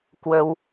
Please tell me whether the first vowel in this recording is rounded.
no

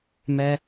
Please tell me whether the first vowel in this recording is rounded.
no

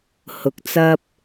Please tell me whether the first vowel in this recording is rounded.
yes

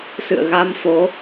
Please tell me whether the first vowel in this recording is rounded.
no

